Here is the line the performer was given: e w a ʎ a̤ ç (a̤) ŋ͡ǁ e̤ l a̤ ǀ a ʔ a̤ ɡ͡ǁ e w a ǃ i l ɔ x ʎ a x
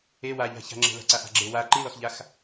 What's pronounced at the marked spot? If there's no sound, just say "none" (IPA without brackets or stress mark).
a̤